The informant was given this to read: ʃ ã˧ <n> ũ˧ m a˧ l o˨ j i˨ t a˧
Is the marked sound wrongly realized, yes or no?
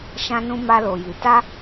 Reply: no